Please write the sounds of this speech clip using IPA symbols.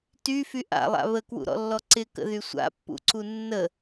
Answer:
t y f y ʔ a̰ lˠ a̰ β ə k w ṵ ɾ ɔ̰ lː ɔ ǀ ɪ k ə̰ ð y sʷ a̰ pː ṵ ǀ u nː ə

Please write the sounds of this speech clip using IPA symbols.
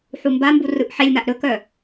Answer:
ħ u m b a m b u r ɯ ʔ ħ e lʲ m a ʔ ɾ ɵ k œ

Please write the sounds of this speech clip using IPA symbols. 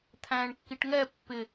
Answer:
t̪ʰ æ̃ ɳ kː i ʈ ŋ ɛ pː ɪ

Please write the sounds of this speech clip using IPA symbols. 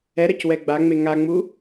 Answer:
ɛ ɾ ɐ c w ɛ ɡ͡b a ŋ͡m e ŋ a ŋ͡m u

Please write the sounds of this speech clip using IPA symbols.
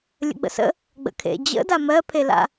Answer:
lʲ ə̰ ɡ͡b ə̰ s ə̰ | ɡ͡b ə̰ kʰ ḛ d͡ʑ ə̰ d a m ɜ pʰ e l a̰

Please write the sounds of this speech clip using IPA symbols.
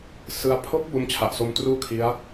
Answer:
s ɯ˦˥ a̯ pʰ o˦˥ k̚ b o˦˥ m t͡ɕʰ a˨˩ ʔ s o˧ m t r uː˥˩ kʰ i˦˥ a̯

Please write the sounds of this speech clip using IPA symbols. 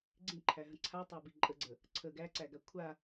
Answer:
ɡ͡ǀ ĩ ǃʰ æ ɦ ə̃ ǀʰ a tˤ æ b i ǃʼ ə ɡ͡ǀ ə | ǀʰ ə ɡ æ ǀ æ ɡ a kʷʰ a

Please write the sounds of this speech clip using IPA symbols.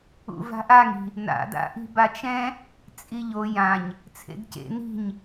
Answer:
ṵ v a̤ ʔ a ŋ i̤ | n a̰ d a̰ ʔ i̤ b a t͡ʃ ɛ̃ | t͡sʼ i ʎ o j ã ɲ | t͡sʰ ḛ d c ḛ n i̤ ɲ

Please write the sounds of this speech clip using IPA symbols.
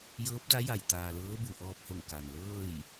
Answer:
j ɤː˧˥ p̚ d a˧˥ j a˧˩ j t̪ aː˩ l ɤː˧˥ b u˩ ʔ ɔː˧ p̚ h o˧˩ ŋ k a˩ n l ɤː˥˨ j

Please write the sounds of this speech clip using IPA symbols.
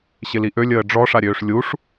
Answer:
ɕ ɪ l i ʔ ø lʲ əː ɖ͡ʐ ɔ ʂ a ɾʲ øː ʂ lʲ u ʂ

